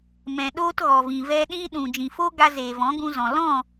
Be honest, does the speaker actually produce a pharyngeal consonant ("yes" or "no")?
no